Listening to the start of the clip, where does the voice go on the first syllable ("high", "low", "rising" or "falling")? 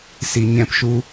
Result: low